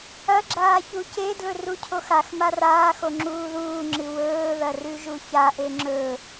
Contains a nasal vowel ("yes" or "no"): no